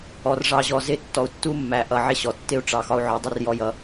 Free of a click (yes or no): yes